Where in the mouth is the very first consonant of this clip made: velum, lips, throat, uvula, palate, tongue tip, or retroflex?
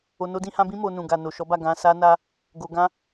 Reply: tongue tip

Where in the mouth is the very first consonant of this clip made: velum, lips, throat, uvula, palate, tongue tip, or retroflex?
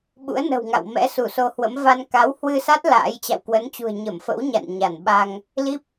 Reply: lips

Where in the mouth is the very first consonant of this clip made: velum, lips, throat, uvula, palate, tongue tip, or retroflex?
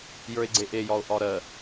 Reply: palate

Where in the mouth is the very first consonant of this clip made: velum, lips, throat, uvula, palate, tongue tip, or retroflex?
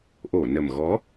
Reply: throat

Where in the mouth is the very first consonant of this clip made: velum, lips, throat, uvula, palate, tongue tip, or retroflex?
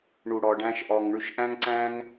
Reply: retroflex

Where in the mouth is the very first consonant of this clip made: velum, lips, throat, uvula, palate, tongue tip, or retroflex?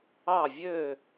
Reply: lips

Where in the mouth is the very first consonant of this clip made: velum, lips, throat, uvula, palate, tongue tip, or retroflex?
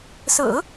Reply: tongue tip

